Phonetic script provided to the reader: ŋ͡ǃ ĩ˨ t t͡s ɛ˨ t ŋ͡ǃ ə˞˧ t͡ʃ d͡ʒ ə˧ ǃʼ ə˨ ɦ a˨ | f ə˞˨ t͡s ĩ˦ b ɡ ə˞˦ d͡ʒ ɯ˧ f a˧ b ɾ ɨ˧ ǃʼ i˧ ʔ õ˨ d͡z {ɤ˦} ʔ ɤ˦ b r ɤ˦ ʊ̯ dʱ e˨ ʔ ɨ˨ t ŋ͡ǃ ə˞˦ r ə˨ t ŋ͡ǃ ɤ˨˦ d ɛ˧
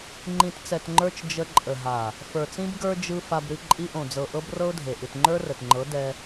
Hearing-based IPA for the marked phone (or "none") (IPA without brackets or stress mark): ɤ˨